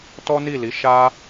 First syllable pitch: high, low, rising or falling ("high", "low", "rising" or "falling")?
high